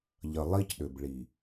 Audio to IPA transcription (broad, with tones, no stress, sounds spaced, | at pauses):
ʎ ə˨ lˠ i˦ c ɗ ʏ˨ b ɭ i˨